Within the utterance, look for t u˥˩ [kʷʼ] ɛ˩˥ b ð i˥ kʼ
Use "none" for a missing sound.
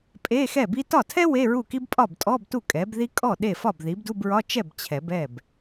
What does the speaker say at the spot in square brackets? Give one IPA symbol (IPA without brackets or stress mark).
kʼ